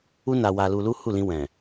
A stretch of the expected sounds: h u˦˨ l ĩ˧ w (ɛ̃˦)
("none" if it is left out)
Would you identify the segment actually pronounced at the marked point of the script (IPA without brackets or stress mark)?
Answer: ɛ̃˨